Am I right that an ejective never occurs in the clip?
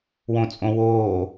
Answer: no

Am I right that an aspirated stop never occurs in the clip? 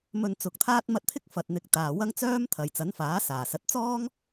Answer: no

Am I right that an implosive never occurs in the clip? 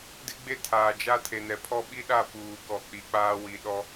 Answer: no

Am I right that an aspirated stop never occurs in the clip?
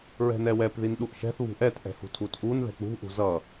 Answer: no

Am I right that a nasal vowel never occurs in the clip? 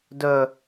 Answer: yes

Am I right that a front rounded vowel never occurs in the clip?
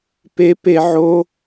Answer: yes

